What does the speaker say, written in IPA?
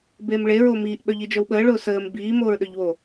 b eː m ɭ e ɹ o m iː ʔ ɓ œ ʎ i d͡ʒ œ w ɓ əː ɭ ʊː s əː m b iː m oː ɹ ɗ œ ʎ w o

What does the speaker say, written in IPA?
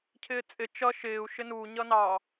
cʰ ɪː t͡sʼ ɪ t͡ʃ ʌ ʃ ɪː u̯ ʃ ɪ n u ɲ ʌ n ɑ

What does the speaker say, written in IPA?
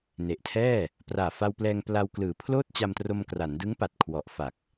n e˨˩ ʔ tʰ ɛː˥˩ | p r aː˨˩ f a˧ w p l ɛː˧ ŋ p l a˧ w k l ɯː˩˦ pʰ l oː˥˩ t̚ t͡ɕ a˧ m t r o˧ m k r a˩˦ n d ɯ˦˥ ŋ p a˨˩ t̚ kʰ w ɔ˨˩ ʔ f a˨˩ k̚

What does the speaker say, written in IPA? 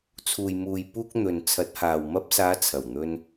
t͡sʰ uː˨ j m uː˨ j p uː˧ k̚ n̪ ɵ˨ n t͡sʰ ɐ˨˥ t̚ h aː˨ w m ɐ˧ p̚ s aː˨˧ t͡sʰ ɐ˨˩ w n̪ ɵ˧ n

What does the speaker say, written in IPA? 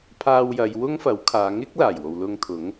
pʰ aː˧ w j ɐ˨˧ j w ʊ˥ ŋ f ɐ˨˥ w kʰ aː˨˧ ŋ ɪ˥ k̚ l aː˨˩ j w o˨ w l ʊ˧ ŋ t̪ʰ ʊ˨˥ ŋ

